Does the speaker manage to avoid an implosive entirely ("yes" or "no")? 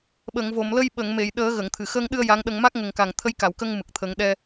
no